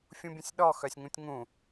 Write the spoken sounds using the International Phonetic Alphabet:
fʲ ũ bʲ ə̃ sʲ ɗ ɔ x œ sʲ ŋ ũ tʲ ŋ ũ

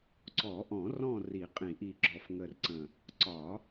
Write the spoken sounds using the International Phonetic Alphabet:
ǀ ɔ˨˩˦ ʔ ɔ̃˨˩˦ r ɔ̃˦˨ r i˨˩˦ qʼ ĩ˨˩˦ ʔ i˨˩ ɡ͡ǁ ɔ˨˩ f ŋ ə˨˩ r ǀ ə̃˨˩ | ǀ ɒ˨˩˦

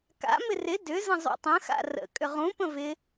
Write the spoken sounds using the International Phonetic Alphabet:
k a̰ m ɪ r ɪ d ʏ z ə̃ zˤ ṵ tˤ ə̃ x a̰ r ə̰ kʼ ʏ ʁ ũ p ə̃ v ɪ

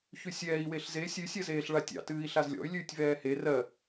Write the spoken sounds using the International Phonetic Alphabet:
ç ʉ sʲ ɛː i̯ w e ɬ z e sʲ ʉ sʲ ɜ z eː ɬ ɭ a tʲ ɑ̰ t ɨː i̯ ɬ a z lʲ ɔ̰ y̯ lʲ ʉː tʲ v ɛː h e r ɜ

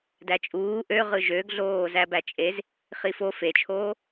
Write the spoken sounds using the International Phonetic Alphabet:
d æ t͡ʃʼ uː ʔ ø ʁ ɯ ʒ ø ɡ ɮ oː z æ b æ t͡ʃʼ e z | χ i f o f e t͡ʃʰ oː

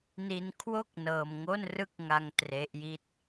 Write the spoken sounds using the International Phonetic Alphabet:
n i˧ n kʰ w o˥˩ k̚ n ɤː˧ m ŋ o˥˩ n r ɯ˥˩ k̚ ŋ a˧ ŋ t r e˦˥ ʔ j i˥˩ t̚

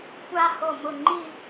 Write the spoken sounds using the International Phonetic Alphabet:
kʷ a˧ h o˧˩ m ʊ˧˩ ŋ͡ǃ i˥˧

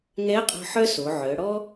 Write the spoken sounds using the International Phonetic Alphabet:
ŋ ɛ˧˥ ə̯ qʼ ɔ̤˧ ħ œ˥ s o˩˧ ʕ œ˩˧ ɽ ɔ˥

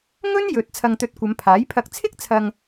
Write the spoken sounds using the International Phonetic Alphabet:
ŋ ɵ˥ n j ɵ˨ t̚ t͡sʰ ɐ˧ ŋ t̪ ɵ˧ t̚ kʷ ɐ˨˧ m pʰ aː˨˥ j pʰ ɐ˨ k̚ t͡sʰ ɪ˥ k̚ t͡sʰ ɐ˨ ŋ

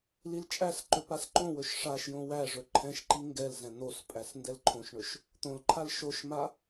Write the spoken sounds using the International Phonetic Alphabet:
l i l t͡ʃʼ æ s ǃ ɵ p a s ǃ õ w ɵ ʃ ʂ a ʃ j õ w æ ʐ ɵ ǃʰ ɛ̃ ʃ ǃ i ŋ ɡ ɛ l z ɛ̃ n̪ o s pʼ æ s n d ɛ l ǃʰ õ ʃ ɳ ɵ ʃ | t̪ õ l ǃʰ a l ʃ o ʃ m a

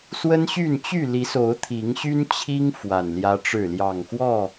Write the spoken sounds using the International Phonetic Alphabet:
s w ə˦ n ɕ y˥˨ n t͡ɕ y˥˨ l i˨˦ s o˨˦ ʊ̯ t̪ʰ i˨˦ ŋ ɕ y˦ n t͡ɕʰ i˦ ŋ f w a˨˩ n l j ä˦ ʈ͡ʂ ɻ̩˥˨ l j ɑ˨˩ ŋ x w ɔ˥˨

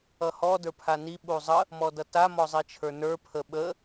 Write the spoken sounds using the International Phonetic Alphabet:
ʌ h ɔ d ə˞ pʰ a n i ɓ u zˤ ə | m ɔ d ʌ t a m ɔ zˤ i t͡ʃʰ ə˞ n ə˞ pʰ ə ɓ ə

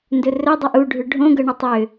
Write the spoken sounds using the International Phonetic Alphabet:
n d ɵ r ɵ dˤ u ʔ u ɖʱ ʏ ɖʱ õ ɡ ɤ ɳ ə tˤ ʏ

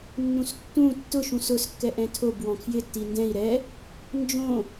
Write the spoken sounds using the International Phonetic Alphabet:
nː ũ s tː ũ tː ʊ ʃ ũ s ʊ s kː ɛ ʔ ɛ̃ tʰ o b w ɔ̃ kʰ j ɪ tː i n d ɛ̃ i̯ ɾ ɛ | n d͡ʒ õ

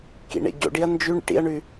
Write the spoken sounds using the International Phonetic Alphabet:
k ḭ ɳ ḛ ɟ o̰ ɖ i ɐ̯ n d͡ʒ ʉ ɳ ḭ ʈ ḭ ɐ̯ ɳ ʉ

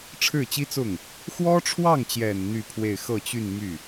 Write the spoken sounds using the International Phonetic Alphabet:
ʈ͡ʂʰ ɻ̩˥˩ t͡ɕ i˥ t͡s ʊ˥˩ ŋ | x w ɔ˥ ʈ͡ʂʰ w ɑ˥˩ ŋ t͡ɕ j ɛ˨˩ n n̪ y˥˧ pʰ w e˥˧ ɪ̯ x ɤ˥˧ t͡ɕ y˥˧ n m y˥˩

